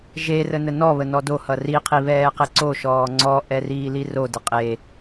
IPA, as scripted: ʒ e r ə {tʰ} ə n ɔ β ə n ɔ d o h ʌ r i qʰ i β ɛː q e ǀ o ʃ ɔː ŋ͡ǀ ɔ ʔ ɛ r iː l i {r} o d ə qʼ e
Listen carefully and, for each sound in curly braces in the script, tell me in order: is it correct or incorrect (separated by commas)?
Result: incorrect, correct